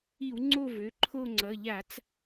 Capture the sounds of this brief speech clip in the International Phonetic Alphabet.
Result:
i˧˩˧ w ŋ͡ǀ o˦˨ v ø˩˧˩ ǃʰ o˦˨ ŋ͡ǀ ʌ˩˧˩ ʎ a˧˩˧ t͡s

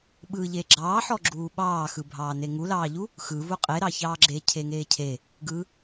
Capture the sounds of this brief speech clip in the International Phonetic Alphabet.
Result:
ɓ ɯ ʎ e ɡ͡ǁ ɑː ħ ɔ ɡ͡ǁ uː ɓ ɑː x ɯ bʱ ɑː n e ŋ u l ɑː ʎ u | x ɯ v u qʼ e ɾ ɑ ç ɑː ɡ͡ǁ e cʰ e ŋ eː cʰ e | ɡ ɯ

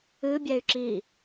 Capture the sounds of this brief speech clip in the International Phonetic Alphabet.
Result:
ɨ bʲ ɛ y̯ ǁ i

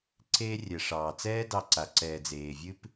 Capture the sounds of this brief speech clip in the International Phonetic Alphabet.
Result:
ǀ eː˧ rʲ ɛ˨ ʂ ɑː˨ t͡s ɛː˦ d ɑ˧ ǀ a˨ ǀ ɛː˨ d͡z eː˨ vʲ ɨ˦ p

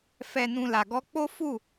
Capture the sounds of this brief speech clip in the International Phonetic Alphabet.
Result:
f ɛ˨ n ũ˨ l a˨ ɡ ɔ˧ k͡p o˦ f u˦˨

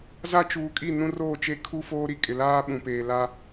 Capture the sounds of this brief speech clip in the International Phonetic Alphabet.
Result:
z a˦ t͡ʃ uː˨ kʼ i˦˨ n ũ˦ r oː˦˨ t͡ʃ e˦ kʰ u˦ f oː˦ ɾ i˦ kʼ ɪ˨ l aː˦ ɓ ũ˨ p eː˨ l a˦

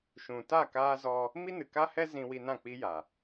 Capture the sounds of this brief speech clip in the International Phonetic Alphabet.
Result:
ʃ ũ˨ t a˦˨ k aː˧ z ɔ˧ | m i˦ n ɨ˨ k a˦ h ɛ˦ z ĩ˧ w i˧ n ã˦˨ k͡p i˦ j a˨

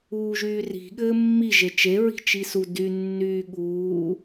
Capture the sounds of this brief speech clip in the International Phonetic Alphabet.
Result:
uː ʒ yː r i̤ ɠ ɘː mː i ʒ e t͡ʃ e ɹ i̤ t͡ʃ i s u d y nː yː ɠ uː

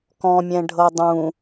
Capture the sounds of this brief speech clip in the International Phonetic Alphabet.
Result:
k ɔ̃ mʲ ɛ̃ ɖʱ ɤ dˤ ũ

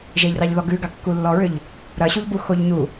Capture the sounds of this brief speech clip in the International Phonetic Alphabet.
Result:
ʒ e ʎ r ɑ ʎ ð ɔ ɡ ʉ ɡ ɑ kː u lː ɔ ɹ ʏ ʎ | ɾ ɐ ɕ u ʎ b u x o ʎ ɲ u

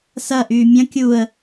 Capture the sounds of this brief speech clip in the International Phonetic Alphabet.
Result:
s ɐ ʔ yː mʲ ɐ̃ kʲ u ə̯

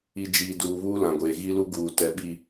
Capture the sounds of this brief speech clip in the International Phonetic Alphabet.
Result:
i˨ d͡ʒ iː˨ d uː˨ β uː˦ l ã˨ ɡʷ eː˨ ɣ i˦ l u˦ ɡ uː˨ t ɛ˨ ɓ i˨

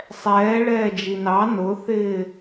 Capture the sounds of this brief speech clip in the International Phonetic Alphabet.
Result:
sˤ ɛː ɭ ɛː d͡ʒ i n ɑ n ʊ θ ɪː

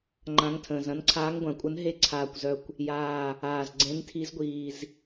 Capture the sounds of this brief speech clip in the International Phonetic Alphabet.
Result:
ŋ͡ǃ ã˨˦ ŋ tʰ ə̃ː˨˩ z ɐ̃˨˦ n ǀʰ aː˨˦ ŋ ɡʷ ã˨˩ kʷʼ ə˨˦ n ɦ e˨˦ ǀʰ aː˨˩ kʷ z œ˨˩ kʷ | j aː˨˩ | aː˨˩ z ɡ͡ǀ ẽ˨˦ n tʰ i˨˦ z ɡʷ iː˨˩ z

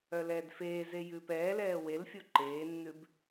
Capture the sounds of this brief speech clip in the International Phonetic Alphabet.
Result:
œ l ɛː d f eː z e j ʉː p ɛː l ɛː w e l fʲ o ǃ eː nː ʉ b

